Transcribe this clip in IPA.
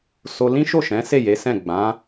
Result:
s o˧ l ĩ˦ ʃ o˦˨ ʃ ɛ̃˨˦ s e˦˨ j e˨˦ s ɛ̃˦˨ ɡ͡b ã˨˦

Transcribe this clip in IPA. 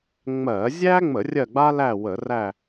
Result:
ŋ͡m ɜ˧˩˧ zʲ æ˥ ŋ͡m ə˧˩˧ rʲ ɜ˦˨ ɡ͡b a˥ l æ˦˨ w ə˧˩˧ r æ˦˨

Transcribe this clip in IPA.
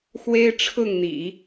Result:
x w e˥ ɪ̯ ʈ͡ʂʰ ʊ˥˩ ŋ n̪ ḭ˨˩˦

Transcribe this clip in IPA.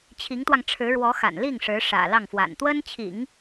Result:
t͡ɕʰ i˧˥ ŋ t̪ w ɑ˧ ŋ ʈ͡ʂʰ ɻ̩˧˥ ɻ w ɔ˧˥ x a̰˨˩ n l i˥˩ ŋ ʂ ɻ̩˧˥ ʂ ä̰˨˩ l ɑ˥˩ ŋ f w a̰˨˩ n t̪ w ə˥ n t͡ɕʰ ḭ˨˩˦ ŋ

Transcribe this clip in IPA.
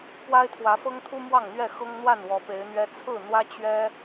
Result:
p w a˦ ɪ̯ t̪ʰ w ä˨˦ f ɤ˦ ŋ t̪ʰ u˦ m w ɑ˥˨ ŋ n̪ ɥ ɛ˥˨ x ɤ˦ ŋ n̪ w a˥˨ n w ɔ˨˦ p e˨˦ ɪ̯ n̪ ɥ ɛ˦ t͡sʰ ɹ̩˥˨ n̪ w ä˦ t͡ɕ ɥ ɛ˦

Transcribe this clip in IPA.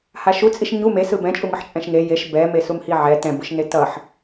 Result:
h a ʃ u t͡sʼ i ʃ ɲ u m e s ɯ b ɛ̃ t͡ʃʼ u ŋ ɯ ħ t͡ʃʼ ɛ̃ ʃ ŋ e j e ʃ b ɛ m e s u m h i ʕ ɛ t ɛ̃ b ɯ ʃ n e t ʌ ħ

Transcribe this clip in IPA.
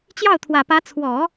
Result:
t͡ɕ j ɑ˥˩ ʊ̯ t̪ʰ w ä˨˩ p ä˧˥ t͡sʰ w ɔ˨˩˦

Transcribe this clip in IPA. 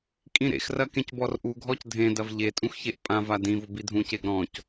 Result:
kʼ ĩ ɾ ḛ x r ɐ k ẽ c b ɔ r ʔ u ɡʱ ɔ c dʱ ẽ d ɐ v ʎ e tʼ ũ x ç e ʔ pʼ ã v a d ĩ v ʊ b i dʱ ũ c e ɡ ɾ ɔ̃ c

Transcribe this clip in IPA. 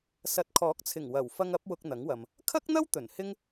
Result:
s ɐ˨˥ t̚ kʰ ɔː˨˥ k̚ t͡sʰ ɪ˨˩ ŋ w ɐ˨˩ w f ɐ˧ ŋ ɐ˨˥ p̚ w ʊ˧ k̚ n̪ ɐ˨˥ ŋ w ɐ˨ m | kʰ ɐ˥ k̚ n̪ ɐ˥ w t̪ ɵ˨˩ n h ɪ˥ ŋ

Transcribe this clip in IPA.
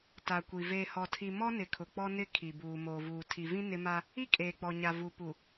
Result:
t a˨ kʷ i˨ v eː˨ h ɔ˨ tʰ i˨ m ɔ˦ n ɪ˨ kʰ ʊ˨ k͡p ɔ˦ n ɪ˦˨ kʰ i˨ b uː˨ m oː˨ v uː˨ tʰ i˨ v ĩ˦ n ɪ˦ m a˦ | i˦ kʼ eː˨ k͡p ɔ˨ ɲ a˨ v u˨ p u˨

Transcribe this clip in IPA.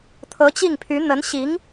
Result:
t̪ʰ ɤ˧˥ t͡ɕ i˥˩ ŋ pʰ y˧˥ n̪ ə˧˥ n ɕ i˧˥ ŋ

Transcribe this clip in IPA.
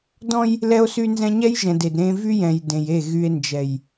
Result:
d ɔ̃˦ j | l ɛ˦ o̯ s y˦ n z ɛ̃˦ ɲ ɛ˦ j ʒ ɛ̃˨ d e˨ d ɾ ẽ˦ v y˦ j ɛ̃˨ j d ẽ˨ j e˦˨ ɣ y˨ e̯ n d͡ʒ ɛ˨ j

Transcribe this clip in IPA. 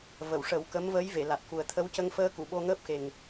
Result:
v ə˨˩˨ w ʂ ə˨˩˦ w k ə˧˥ m v ə˧˥ j v e˨˩˨ l a˨˩ t̚ k u˨˩ ə̯ t̪ʰ ə˧˥ w c ə˧ ŋ f əː˧ k u˨˩˨ ɓ o˧ ŋ əː˦˥ p̚ x e˨˩ ŋ

